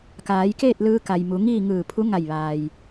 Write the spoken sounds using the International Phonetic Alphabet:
k aː˩˧ j k eː˥˨ t̚ l ɯː˧ k a˩ j m u˩˧ ŋ iː˥˨ ŋ ɯː˧˩ pʰ u˧˥ ŋ a˧˩ j ʋ aː˩ j

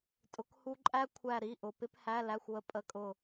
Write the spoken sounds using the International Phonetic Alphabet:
tʼ ʊ˧˥˧ k h u˥ ǃʼ æ˥ kʷʰ æ˦˨ ɾ i˧˥˧ ʔ ʊ˨˩ p ɪ˥ p h æ˧˥˧ l æ˧˥˧ xʷ ʊ˦˨ ə̯ pʼ ə˨˥ kʼ ʊ˨˩

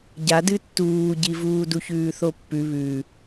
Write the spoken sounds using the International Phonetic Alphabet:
ɟ a d ɨ tː uː ɟ i v uː d u ç ʉː θ o pː ʉ β ʉ

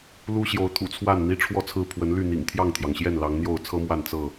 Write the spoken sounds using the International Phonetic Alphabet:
l u˦ ɕ j o˨˦ ʊ̯ t̪ʰ ṵ˨˩ t͡sʰ w a˥˨ n n̪ i˦ ʈ͡ʂʰ w ɔ˥˨ t͡sʰ ɹ̩˥˨ pʰ w ə˨˦ n l y˥˨ n̪ ḭ˨˩ ŋ t̪ʰ j ɑ˥˨ ŋ t̪ʰ j ɑ˩ ŋ ɕ j ɛ˥˨ n l ɑ˨˦ ŋ n̪ j o˥˨ ʊ̯ t͡sʰ ɤ˦ m w a˥˨ n t͡s ɤ˥˨

